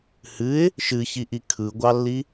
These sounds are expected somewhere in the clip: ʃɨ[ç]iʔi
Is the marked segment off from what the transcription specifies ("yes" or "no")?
no